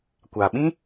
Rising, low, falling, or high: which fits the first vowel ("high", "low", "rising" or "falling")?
low